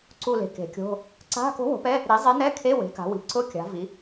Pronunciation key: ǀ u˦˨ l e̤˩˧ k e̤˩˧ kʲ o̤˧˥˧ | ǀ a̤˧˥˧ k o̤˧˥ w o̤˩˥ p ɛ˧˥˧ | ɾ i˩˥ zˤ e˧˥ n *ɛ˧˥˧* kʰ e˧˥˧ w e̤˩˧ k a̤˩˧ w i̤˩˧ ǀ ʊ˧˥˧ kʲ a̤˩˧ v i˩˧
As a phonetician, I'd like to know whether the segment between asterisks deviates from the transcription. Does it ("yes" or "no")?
no